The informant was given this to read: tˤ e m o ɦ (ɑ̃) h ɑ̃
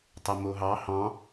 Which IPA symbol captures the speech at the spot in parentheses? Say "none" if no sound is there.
ɑ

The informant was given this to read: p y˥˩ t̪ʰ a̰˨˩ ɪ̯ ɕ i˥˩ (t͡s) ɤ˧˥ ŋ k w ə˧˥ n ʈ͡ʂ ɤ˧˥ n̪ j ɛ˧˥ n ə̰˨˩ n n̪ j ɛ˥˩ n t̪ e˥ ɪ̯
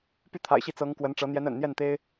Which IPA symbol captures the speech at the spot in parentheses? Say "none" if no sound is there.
t͡s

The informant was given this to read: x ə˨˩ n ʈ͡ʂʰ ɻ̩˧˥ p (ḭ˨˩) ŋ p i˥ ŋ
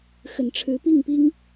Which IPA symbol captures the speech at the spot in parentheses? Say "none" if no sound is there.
i˥˩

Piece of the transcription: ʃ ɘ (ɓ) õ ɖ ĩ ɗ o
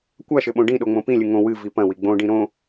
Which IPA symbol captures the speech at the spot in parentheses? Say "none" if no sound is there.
ɓ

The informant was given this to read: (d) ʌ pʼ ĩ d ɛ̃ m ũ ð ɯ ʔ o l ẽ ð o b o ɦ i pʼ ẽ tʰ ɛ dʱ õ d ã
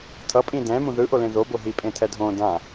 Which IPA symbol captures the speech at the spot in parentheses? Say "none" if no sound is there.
tʰ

